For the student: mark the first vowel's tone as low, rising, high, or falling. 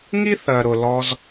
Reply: high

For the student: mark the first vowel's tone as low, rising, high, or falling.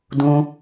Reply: high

